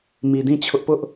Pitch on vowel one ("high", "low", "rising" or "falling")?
low